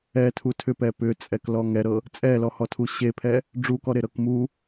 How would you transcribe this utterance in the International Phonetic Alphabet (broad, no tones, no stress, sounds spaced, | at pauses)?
ɛ tʰ u tʰ ʏ p ɛ p ʏ t͡sʼ ɛ k l ɔ ŋ ɛ ɾ ɤ | t͡sʼ ɛ l ɔ h ɔ tʰ u ɕ e pʰ ɛ | ɖ͡ʐ u k ɔ ɾ e ɾ ɤ k m u